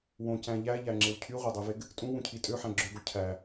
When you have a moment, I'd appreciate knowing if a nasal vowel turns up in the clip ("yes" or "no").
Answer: yes